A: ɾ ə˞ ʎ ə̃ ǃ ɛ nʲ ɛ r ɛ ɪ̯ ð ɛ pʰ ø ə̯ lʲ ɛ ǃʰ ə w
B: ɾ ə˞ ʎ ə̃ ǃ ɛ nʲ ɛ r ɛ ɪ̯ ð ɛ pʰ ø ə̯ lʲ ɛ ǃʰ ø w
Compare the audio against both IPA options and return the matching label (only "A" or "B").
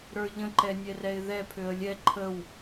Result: A